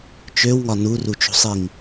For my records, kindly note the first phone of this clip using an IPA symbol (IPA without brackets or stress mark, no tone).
t͡ʃ